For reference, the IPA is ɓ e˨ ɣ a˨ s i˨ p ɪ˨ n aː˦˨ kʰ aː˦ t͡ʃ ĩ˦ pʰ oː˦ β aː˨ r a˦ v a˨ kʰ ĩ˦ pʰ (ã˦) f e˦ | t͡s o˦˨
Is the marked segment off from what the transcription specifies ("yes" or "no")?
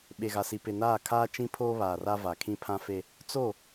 no